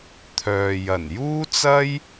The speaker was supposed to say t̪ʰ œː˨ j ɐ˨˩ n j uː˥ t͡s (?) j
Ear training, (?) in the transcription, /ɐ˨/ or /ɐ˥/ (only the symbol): ɐ˥